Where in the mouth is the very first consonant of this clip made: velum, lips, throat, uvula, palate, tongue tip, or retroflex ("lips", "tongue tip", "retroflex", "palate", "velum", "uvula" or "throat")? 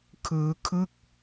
velum